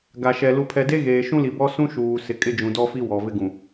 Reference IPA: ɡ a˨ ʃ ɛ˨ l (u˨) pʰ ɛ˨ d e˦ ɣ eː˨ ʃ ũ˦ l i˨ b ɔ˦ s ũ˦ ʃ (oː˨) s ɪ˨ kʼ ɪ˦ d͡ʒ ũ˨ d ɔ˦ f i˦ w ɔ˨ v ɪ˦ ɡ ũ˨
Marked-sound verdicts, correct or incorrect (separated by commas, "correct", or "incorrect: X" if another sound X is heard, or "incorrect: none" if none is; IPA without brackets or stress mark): correct, incorrect: uː˨